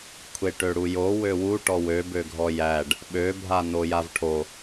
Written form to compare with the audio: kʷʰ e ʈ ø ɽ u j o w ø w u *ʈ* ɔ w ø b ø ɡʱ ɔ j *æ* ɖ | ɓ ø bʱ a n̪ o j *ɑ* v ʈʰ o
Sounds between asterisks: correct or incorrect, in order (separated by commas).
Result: correct, correct, incorrect